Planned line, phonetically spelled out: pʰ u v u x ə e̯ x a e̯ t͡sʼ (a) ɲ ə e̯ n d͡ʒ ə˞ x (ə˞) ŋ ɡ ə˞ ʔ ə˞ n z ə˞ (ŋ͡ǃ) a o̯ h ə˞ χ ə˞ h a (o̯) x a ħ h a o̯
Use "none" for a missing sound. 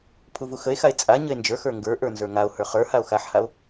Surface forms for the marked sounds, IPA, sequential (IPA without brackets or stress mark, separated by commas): a, ə˞, ŋ, o̯